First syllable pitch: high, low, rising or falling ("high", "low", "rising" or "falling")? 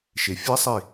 low